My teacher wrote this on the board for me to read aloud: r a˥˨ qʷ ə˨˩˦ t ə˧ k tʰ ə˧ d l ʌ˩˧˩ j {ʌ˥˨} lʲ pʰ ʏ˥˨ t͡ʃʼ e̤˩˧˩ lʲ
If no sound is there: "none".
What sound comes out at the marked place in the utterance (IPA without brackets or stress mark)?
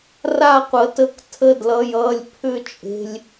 ʌ˩˧˩